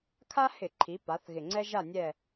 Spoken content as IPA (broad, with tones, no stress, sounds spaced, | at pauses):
kʰ a˦ h ɪ˧˩˧ ǃʰ i˩˧ p a˩˧ θ ɣ ɪ˨˩ ŋ͡ǀ ɛ˦ ʒ a˦˨ nʲ ɛ˦˨